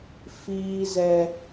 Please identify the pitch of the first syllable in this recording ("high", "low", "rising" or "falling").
high